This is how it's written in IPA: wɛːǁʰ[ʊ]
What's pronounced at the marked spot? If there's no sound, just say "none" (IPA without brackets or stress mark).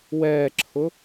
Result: ʊ